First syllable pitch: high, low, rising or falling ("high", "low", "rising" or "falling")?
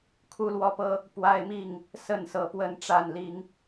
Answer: high